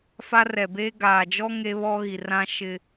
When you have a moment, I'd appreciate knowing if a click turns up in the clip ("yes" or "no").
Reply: no